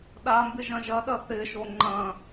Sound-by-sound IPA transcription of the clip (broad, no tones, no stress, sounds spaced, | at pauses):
ɗ a m b ɪ ʒ ɐ̃ ʒ ɐ ɗ ɐ θ ɪ ʃ o ŋ͡ǃ ɐ̃